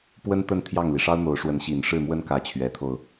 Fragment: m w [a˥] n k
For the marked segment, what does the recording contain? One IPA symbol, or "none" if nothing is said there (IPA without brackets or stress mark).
ə˥